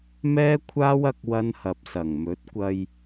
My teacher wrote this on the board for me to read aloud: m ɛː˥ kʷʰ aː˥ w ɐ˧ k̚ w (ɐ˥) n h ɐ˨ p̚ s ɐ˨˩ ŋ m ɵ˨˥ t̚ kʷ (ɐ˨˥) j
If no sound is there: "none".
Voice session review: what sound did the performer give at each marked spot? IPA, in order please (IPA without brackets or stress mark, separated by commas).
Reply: ɐ˥, ɐ˧